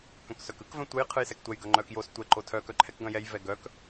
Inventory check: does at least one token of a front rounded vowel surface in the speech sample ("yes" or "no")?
yes